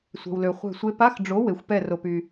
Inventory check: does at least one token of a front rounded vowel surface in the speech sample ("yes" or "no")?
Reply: yes